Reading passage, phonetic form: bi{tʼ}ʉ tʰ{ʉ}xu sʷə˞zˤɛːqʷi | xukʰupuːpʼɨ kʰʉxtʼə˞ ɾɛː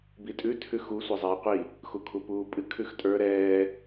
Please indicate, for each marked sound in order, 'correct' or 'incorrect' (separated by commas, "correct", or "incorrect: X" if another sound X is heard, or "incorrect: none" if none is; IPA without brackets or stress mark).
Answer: correct, correct